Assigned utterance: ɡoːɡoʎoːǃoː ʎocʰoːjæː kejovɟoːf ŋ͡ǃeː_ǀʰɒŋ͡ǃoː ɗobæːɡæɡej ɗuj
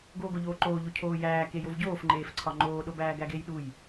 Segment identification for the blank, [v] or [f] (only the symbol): f